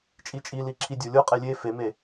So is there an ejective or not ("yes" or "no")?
yes